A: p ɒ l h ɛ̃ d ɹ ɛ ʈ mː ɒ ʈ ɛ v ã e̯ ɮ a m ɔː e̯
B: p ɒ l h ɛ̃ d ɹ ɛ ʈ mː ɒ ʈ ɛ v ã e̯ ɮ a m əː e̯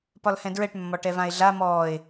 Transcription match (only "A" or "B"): A